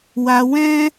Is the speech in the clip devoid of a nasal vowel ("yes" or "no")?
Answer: no